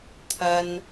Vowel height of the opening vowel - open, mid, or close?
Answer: open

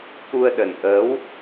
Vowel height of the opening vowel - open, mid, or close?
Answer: close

